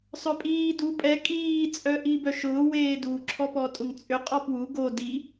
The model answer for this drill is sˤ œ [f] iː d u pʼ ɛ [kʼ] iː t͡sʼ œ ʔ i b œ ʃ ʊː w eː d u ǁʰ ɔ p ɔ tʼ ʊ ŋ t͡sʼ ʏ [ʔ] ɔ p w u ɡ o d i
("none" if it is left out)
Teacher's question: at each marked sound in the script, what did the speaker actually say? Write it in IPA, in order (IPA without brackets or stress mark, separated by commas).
pʼ, kʼ, qʼ